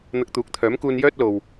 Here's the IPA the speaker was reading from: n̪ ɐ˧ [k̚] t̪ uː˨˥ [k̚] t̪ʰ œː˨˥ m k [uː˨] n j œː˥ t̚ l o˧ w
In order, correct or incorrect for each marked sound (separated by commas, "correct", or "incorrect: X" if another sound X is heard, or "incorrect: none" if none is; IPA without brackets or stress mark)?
correct, correct, incorrect: uː˧